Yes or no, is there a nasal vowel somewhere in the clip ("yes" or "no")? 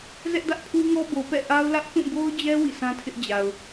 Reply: yes